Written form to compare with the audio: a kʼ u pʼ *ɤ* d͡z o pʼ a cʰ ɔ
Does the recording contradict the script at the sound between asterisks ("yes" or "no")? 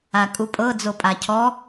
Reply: no